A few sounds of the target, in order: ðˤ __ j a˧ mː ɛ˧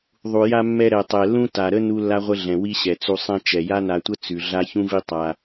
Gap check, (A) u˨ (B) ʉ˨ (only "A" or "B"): A